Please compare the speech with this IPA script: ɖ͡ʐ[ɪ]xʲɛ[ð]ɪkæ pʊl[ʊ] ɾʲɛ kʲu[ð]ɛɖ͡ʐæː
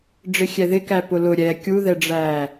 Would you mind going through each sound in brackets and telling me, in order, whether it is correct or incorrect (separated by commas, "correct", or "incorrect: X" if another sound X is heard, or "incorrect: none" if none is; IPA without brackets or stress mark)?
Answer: correct, correct, correct, correct